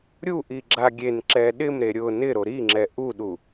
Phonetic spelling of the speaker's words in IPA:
ɾʲ u ʔ i ɡ͡ǁ a ɡʲ e n ǁ ɛ ɗ ɪ m ɾ e ɾʲ ʊ n ɪ ɾ o ɾ i ŋ͡ǁ ɛ ʔ u ɗ u

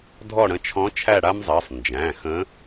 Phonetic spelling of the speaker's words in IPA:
dʱ ɔ˦˨ ɽ ə̃˧˥ t͡ʃʰ ɔ̃˧˥ t͡ʃʰ æ˦˨ ɽ a˥ m zˤ æ˩˧˩ sˤ n d͡ʒ æ̃˩˧˩ x ə̃˧˥

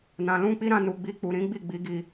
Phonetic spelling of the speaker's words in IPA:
n ã˧ l ũ˦ k͡p i˦ ɾ ã˧ n u˨ ɡ͡b i˧ k͡p u˨ ɾ ĩ˨˦ ɡ͡b i˦˨ ɡ͡b i˨˦ ɡ i˧

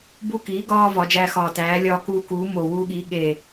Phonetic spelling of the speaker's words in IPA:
b u˦ k iː˨˥ ɡ ɒː˦ v ɒ˨˥ d͡ʒ æː˦ x ɒː˧˩ t æː˨˥ lʲ ɒː˦ k uː˦ k uː˨˥ m o˧˩ w uː˦ ɠ iː˨˥ ɠ e˧˩

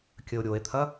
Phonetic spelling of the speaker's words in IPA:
kʲ ə o̯ ɾʲ o e̯ t̪ʰ ɐ

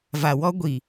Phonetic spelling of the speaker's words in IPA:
v a˨ w ɔ˦ ɡʷ i˨

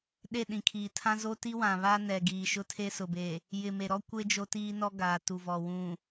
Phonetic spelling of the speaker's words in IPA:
ɗ e˦˨ ɗ ĩ˨ kʰ iː˨ tʰ ã˦ z o˦ t i˦ w ã˨ β a˦ n ɛ˨ ɡ iː˨ ʃ ʊ˦ tʰ e˦ s ʊ˨ b e˨ | j ɪ˨ m e˨ ɾ ɔ˦ kʷ e˦ d͡ʒ o˦ t iː˦ n ɔ˦ ɡ aː˨ t u˨ v ɔ˨ w ũ˨

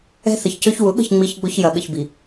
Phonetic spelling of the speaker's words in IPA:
ɛ̤˦ θ ə˨ ç c ø˦ ç w ʊ˨˦ ɠ ə̤˦˨ ç ŋ͡m i˦ ç ɡ͡b ʊ˦ ç j ɐ˨ ɠ ə̰˨ ç b i˨

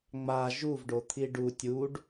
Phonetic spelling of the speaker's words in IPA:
ŋ͡m a ʒ u v ɖ o t̪ʰ i ɖ u tʲ u ɖ

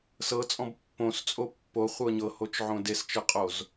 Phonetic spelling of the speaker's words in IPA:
s ɤ t͡sʼ ɔ̃ b pː õ s t͡sʼ o pː o χʷ ɤ ɲ ɤ h o t͡ʃ ʕ õ d e s t͡ʃ ɤ qʼ o z

